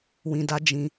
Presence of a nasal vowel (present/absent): present